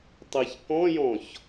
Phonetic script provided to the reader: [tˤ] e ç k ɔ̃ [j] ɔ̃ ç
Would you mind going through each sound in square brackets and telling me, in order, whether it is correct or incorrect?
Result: correct, correct

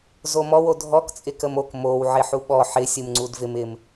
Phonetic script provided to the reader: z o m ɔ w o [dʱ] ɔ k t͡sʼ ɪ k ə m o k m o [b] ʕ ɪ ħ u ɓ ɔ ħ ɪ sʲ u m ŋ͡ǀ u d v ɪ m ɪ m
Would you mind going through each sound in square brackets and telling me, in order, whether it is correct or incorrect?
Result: correct, incorrect

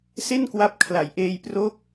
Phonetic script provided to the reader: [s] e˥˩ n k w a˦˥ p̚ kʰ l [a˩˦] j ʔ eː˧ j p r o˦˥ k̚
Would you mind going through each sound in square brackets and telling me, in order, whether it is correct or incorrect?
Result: correct, correct

